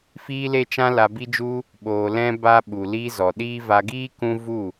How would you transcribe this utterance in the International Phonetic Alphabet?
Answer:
fiː˦le˦t͡ʃã˦ la˧bi˦d͡ʒu˦ | ɓoː˨ lɛ̃˦ba˦ ɓu˨li˧ zɔ˨ɗiː˦ va˧ɡiː˦ kũ˦ vu˦˨

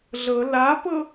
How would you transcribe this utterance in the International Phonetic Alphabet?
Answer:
ɮɤ lapɤ

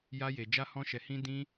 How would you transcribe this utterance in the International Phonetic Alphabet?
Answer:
ja˧je˨ d͡ʒa˧hɔ̃˧ʃɛ˨hĩ˧ dĩ˧

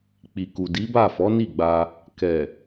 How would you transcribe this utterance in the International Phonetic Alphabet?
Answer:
k͡pi˨ku˨di˨˦ba˦˨ fɔ˨˦ni˦˨ɡ͡ba˧ | kɛ˨

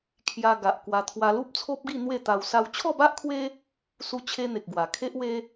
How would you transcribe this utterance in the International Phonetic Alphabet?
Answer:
kʰja˧ɡa˨ʔ kwa˧ t̪ʰwa˧lu˦p̚t͡sʰo˦p̚ɡi˥˧ n̪we˥˧t̪a˧w sa˧wt͡ɕʰɔ˥˧ba˦ʔkʰwe˦ | su˧t͡ɕʰe˧ n̪e˨k̚ɡwa˨˩ kʰe˦ʔwe˦

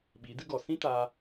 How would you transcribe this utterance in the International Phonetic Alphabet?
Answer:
ɓiː˨˦dɨ˦ ɡɔ˨sĩ˦taː˧

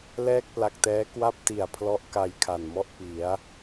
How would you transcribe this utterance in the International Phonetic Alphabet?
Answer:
lɛː˥˩k̚pla˨˩k̚tɛː˦˥ kwa˥˩p̚ti˨˩a̯pʰlɔ˦˥ʔ ka˧jkʰa˨˩nmɔ˥˩ʔ pi˩˦a̯

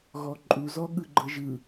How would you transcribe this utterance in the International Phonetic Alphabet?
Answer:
ɣɔǃʼu zɔɠɯɡ͡ǃɤʒɯ

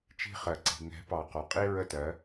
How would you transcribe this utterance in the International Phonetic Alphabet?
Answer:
t͡ʃi̤˦χɜ˨ǀi̤˨ ŋɛ̤˨˦pɑ˨ qɒ˨qʼi˦ɹə˦˨tɜ˨˦

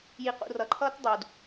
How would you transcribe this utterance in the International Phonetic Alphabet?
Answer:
jiqṵ rʌǃʰʌːt dˤud

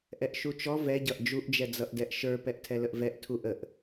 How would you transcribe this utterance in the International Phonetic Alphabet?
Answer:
ʔɛʔʃut͡ʃɔ vɛɟʌʔ d͡ʒuʔd͡ʒɛd͡zʌʔdɛʔ ʃə˞ pɛʔtʰɛləʔvɛʔ tʰuʔəʔ

